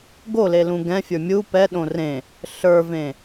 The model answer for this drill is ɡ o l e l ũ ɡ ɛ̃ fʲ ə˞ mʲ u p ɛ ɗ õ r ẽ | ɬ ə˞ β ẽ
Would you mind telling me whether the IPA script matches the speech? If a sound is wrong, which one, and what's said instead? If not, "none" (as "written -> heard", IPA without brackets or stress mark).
β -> v